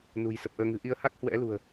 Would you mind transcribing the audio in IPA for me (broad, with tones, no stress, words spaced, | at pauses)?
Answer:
nṳ˨˩jsə˨˩p̚ʔəː˧ ŋɨ̤˨˩ʔi˧ə̯ ha˦˥k̚hwɛ̰˧˥lṳ˨˩ə̯